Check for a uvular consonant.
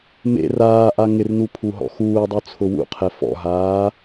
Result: present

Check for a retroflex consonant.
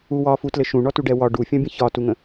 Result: present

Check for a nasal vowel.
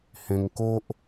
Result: present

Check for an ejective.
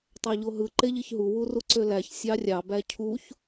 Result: absent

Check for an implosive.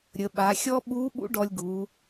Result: present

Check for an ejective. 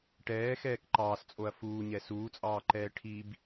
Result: present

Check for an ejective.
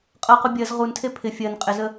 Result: present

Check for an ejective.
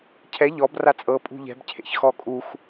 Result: present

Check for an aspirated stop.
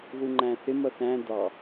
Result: absent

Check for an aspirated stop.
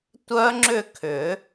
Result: present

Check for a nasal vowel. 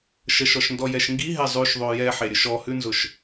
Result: absent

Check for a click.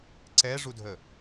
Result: present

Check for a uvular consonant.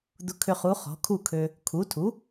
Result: present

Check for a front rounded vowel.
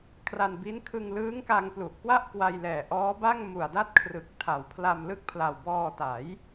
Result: absent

